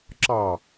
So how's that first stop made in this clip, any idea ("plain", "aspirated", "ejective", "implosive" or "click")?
click